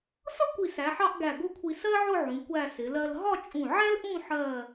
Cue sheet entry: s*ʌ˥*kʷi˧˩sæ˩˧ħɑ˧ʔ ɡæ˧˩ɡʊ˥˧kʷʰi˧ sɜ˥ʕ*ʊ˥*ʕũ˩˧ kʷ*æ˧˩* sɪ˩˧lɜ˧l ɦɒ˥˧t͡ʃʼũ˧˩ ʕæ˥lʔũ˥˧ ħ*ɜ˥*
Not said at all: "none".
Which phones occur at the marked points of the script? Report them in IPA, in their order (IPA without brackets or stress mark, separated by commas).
ʌ˥, ʊ˥˧, æ˧˩, ɜ˥˧